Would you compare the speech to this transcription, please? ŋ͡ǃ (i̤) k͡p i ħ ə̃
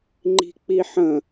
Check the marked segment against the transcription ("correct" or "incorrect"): correct